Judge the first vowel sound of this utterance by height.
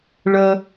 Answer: mid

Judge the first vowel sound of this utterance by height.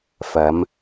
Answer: low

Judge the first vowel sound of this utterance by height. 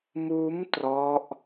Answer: high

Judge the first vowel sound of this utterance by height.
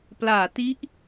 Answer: low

